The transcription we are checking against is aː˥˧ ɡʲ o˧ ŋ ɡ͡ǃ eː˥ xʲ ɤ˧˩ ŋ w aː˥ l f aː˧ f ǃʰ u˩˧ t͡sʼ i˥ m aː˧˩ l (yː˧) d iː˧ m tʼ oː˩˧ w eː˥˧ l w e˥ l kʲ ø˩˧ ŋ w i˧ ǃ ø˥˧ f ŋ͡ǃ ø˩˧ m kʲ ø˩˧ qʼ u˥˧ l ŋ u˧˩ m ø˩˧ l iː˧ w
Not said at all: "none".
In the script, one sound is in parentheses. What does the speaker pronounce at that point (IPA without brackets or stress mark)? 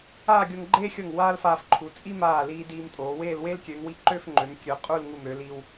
iː˧